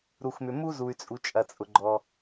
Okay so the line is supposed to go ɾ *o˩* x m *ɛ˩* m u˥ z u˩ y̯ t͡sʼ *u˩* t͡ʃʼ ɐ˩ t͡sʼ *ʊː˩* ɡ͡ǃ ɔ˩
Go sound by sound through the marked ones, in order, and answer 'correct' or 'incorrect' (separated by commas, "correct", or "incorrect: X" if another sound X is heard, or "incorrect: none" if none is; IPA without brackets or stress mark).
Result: incorrect: u˩, incorrect: ʏ˩, correct, incorrect: ʊ˩